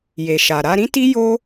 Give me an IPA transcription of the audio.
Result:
je˨ʃa˨ ɾa˧ɾĩ˦ti˦ jo˦

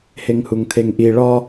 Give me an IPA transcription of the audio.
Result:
heŋhuŋt̪ʰeŋʔi ɭɒ

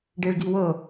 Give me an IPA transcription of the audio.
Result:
ɖeɭɡiwɤ

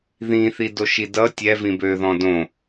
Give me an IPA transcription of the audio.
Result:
ðĩθidoʃi dʌ tʲɛvĩ bøðɔ̃ dõ

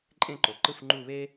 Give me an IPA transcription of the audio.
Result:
ǃʼẽ˦˨ǃo˩ǃɯ˦˨f ŋ͡ǃu˦˨βe˥

